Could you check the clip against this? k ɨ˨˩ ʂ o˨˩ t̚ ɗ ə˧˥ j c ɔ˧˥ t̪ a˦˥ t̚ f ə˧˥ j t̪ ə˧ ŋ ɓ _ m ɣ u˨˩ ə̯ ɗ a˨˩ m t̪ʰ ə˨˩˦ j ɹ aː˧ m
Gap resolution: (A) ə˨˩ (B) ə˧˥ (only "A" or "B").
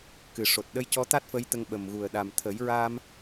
A